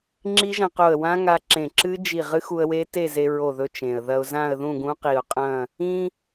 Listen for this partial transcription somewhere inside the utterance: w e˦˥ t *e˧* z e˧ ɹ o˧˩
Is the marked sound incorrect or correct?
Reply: incorrect